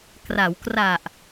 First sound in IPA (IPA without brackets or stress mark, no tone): k